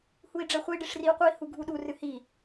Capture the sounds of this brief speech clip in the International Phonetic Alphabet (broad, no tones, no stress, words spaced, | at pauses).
hui̯ɖ͡ʐɛχʷi ɖiʂriu̯qʷɨi̯ huɡʱuɗu rɨhi